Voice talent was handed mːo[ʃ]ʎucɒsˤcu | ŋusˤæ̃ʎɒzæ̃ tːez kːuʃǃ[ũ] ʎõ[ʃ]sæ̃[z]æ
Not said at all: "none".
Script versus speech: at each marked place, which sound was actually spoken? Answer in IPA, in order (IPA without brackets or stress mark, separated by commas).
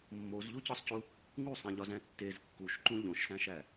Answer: z, ũ, ʃ, ʃ